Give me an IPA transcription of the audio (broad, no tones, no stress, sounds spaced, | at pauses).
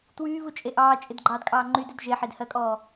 t w yː β u t͡ʃʼ e ʔ ɑː t͡ʃʼ ɪ d ɡ͡ǃ ɑː d kʼ ɑː ŋ͡ǃ y d ɪ d ʒ e ħ e d h ɜ kʼ ɔː